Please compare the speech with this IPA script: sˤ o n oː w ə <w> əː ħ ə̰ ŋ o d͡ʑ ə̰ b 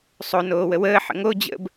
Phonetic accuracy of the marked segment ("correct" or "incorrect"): correct